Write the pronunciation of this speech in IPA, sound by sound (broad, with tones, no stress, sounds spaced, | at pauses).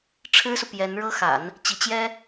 ʈ͡ʂʰ ɻ̩˥ s u˨ p j ɛ˧˥ n ɻ ɤ˥ x a̰˨˩˦ n | t͡ɕ i˧˥ t͡ɕ j ɛ˥